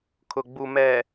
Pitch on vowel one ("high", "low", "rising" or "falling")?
low